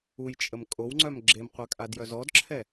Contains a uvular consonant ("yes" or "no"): yes